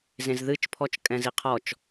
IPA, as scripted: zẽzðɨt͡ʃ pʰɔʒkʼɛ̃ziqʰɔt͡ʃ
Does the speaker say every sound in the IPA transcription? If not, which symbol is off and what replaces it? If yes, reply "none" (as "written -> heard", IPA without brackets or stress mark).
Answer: ʒ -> t͡ʃ